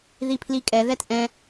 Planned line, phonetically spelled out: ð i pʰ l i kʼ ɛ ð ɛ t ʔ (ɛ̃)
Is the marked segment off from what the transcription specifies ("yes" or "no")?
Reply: no